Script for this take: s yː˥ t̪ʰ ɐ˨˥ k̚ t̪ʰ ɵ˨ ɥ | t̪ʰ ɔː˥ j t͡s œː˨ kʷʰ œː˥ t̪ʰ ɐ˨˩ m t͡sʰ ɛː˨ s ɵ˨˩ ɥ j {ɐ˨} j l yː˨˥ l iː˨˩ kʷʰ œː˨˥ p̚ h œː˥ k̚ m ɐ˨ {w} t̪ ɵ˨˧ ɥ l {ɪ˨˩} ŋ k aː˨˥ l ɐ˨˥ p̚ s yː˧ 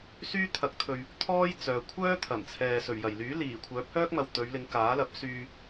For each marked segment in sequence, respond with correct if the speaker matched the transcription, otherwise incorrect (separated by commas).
incorrect, correct, incorrect